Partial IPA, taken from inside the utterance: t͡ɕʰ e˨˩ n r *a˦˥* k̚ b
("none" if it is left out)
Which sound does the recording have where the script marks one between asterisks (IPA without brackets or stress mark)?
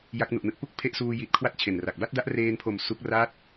a˨˩